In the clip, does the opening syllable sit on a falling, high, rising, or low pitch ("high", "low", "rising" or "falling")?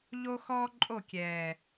high